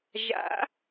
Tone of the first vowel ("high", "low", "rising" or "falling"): rising